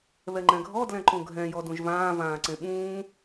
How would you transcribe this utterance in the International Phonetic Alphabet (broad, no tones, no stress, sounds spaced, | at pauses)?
β ɛ ŋ͡ǃ ɛ̃ ɡʱ ɔ d l ɛ̃ ǃ ũ ɡʱ ɛ̃ j ɔ d ũ ʒ v ãː v ãː ǀ ẽ ɓ ũː